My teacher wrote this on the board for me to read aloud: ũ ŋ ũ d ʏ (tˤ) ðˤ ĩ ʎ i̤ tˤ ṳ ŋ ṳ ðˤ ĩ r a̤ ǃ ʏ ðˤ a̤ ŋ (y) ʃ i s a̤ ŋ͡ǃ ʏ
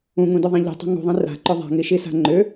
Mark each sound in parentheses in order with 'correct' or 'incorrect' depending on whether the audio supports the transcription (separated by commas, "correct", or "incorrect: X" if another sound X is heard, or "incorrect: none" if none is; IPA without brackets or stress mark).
incorrect: none, incorrect: i